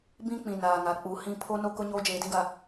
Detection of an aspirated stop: present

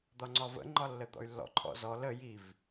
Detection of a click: present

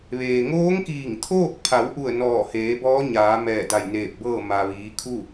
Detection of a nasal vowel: absent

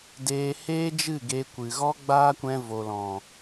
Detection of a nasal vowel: present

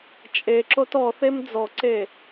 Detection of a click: present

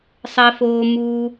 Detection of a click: absent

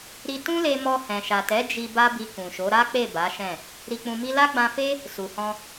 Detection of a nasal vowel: present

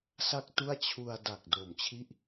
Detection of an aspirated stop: present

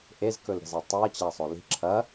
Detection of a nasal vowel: absent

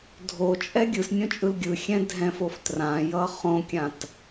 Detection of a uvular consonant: present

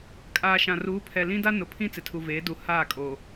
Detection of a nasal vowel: present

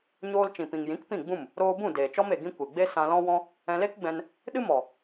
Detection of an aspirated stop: absent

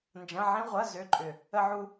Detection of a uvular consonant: present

